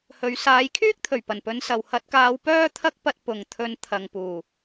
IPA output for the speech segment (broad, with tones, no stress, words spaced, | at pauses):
hɵ˨˧ɥ saː˨˧jkʰyː˥k̚t̪ʰɵ˨˩ɥ pɐ˨˩npɵ˨˧n sɐ˨whɐ˧t̚kaː˧w pœː˥t̪ʰɐ˥k̚pɐ˧t̚ pʊ˨ŋt̪ʰɵ˧nt̪ʰɐ˨ŋpuː˨˩